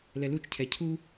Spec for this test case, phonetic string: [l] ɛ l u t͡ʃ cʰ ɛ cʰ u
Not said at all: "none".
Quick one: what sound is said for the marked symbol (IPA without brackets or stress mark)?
l